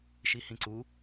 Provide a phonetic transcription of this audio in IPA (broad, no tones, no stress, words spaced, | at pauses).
ʃihĩǀu